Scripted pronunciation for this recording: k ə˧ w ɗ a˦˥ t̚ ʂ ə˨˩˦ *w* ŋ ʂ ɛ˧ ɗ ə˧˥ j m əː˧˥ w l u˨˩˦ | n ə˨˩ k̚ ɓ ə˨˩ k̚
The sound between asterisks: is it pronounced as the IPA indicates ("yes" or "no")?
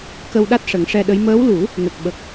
no